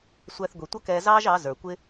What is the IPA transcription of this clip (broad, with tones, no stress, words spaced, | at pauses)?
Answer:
sʷæ˧θɡʷi˨tʷʌ˦kɛː˧ zɑː˦ʒɑ˨˦ zə˞˨kʷɪ˦